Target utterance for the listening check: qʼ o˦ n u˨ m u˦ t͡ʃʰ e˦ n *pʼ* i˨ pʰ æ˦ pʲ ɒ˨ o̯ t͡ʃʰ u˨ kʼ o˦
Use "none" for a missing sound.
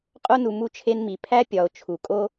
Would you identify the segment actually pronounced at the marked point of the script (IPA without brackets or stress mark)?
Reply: m